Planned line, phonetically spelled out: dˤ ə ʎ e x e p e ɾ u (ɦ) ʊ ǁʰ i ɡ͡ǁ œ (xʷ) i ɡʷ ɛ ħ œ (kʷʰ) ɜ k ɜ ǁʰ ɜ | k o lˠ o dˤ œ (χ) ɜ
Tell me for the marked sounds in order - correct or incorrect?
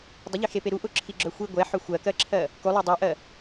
incorrect: ʔ, correct, incorrect: xʷ, incorrect: ʔ

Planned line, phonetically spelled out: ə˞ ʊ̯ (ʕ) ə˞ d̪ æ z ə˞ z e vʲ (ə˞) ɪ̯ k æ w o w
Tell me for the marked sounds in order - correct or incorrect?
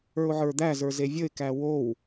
correct, incorrect: ə

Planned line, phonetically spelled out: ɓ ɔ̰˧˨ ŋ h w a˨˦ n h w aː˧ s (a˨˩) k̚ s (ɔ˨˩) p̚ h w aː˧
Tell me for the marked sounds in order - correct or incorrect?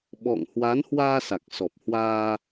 correct, correct

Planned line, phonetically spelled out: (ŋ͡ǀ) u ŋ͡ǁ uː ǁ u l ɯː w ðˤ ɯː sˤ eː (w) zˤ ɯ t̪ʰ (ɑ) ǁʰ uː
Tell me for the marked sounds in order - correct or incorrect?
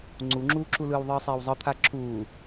correct, correct, incorrect: a

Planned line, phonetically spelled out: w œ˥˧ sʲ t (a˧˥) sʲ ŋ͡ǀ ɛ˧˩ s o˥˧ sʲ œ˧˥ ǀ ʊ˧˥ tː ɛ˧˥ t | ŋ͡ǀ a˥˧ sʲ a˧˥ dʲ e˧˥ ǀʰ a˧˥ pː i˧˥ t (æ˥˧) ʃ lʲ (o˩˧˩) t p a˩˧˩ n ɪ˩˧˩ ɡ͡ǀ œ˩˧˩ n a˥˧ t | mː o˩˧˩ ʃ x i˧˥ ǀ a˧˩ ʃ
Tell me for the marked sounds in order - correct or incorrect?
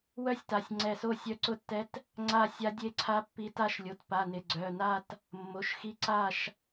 incorrect: a˩˧˩, incorrect: a˥˧, correct

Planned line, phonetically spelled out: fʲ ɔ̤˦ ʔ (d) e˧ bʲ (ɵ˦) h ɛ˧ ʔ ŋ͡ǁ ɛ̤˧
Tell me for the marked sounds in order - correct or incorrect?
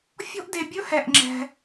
correct, correct

